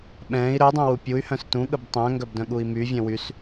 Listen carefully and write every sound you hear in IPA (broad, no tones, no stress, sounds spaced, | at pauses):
ɓ ɛ̃ː i̯ ɾ œ dˤ ũ w u pʲ u y̯ h œ̃ s t ũ ɠ ə b tˤ œ̃ ŋ ɡ œ b d œ̃ ɠ u i̯ m y vʲ œ̃ w y s